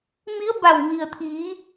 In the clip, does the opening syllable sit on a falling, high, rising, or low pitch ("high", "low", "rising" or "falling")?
rising